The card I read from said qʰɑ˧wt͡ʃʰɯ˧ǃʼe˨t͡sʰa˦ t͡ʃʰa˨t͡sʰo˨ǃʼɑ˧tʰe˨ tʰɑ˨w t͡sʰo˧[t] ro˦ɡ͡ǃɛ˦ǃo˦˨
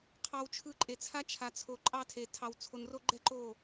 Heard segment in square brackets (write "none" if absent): n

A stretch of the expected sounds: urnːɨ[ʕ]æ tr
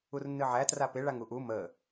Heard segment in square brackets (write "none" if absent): ʕ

